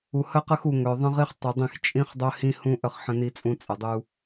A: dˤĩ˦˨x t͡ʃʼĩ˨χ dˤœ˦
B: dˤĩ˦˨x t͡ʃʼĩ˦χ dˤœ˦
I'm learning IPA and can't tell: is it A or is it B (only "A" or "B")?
B